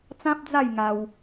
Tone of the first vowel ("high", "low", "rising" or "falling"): high